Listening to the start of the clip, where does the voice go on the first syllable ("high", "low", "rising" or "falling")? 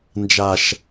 low